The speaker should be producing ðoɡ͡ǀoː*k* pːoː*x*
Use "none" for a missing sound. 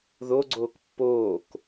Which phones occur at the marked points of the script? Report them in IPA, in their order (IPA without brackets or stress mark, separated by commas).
k, k